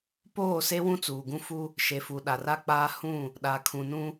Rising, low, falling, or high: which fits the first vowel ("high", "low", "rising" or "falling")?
falling